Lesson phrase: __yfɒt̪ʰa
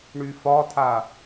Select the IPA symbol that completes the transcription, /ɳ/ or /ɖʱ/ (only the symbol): ɳ